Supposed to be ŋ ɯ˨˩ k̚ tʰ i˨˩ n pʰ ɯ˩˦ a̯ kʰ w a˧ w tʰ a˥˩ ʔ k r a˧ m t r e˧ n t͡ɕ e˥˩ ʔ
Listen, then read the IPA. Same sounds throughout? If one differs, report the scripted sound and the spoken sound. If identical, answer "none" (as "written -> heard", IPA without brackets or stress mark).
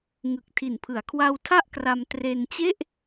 none